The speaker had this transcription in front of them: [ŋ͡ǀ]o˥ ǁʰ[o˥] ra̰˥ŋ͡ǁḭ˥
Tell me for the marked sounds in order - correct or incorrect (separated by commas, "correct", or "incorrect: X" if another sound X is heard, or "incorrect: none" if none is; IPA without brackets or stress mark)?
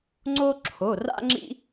correct, incorrect: o˧˥˧